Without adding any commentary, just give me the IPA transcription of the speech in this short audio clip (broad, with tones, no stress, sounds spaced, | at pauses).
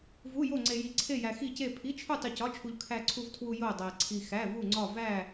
v u˧˥˧ j o˥˧ ŋ͡ǀ e˧ j i˧ ǀʰ e˥˧ j æ˧ x i˥˧ c e˥˧ pʰ i˧˥˧ t͡ʃʰ u˥˧ tˤ u˧ c ɒ˧˥˧ t͡ʃʰ u˧ ʎ kʰ æ˧ ǀʰ u˧ v tʰ w u˧ j o˥˧ dˤ æ˧ ǀʰ i˧ x æ˧˥˧ v u˥˧ ŋ͡ǀ ɒ˥˧ v æ˥˧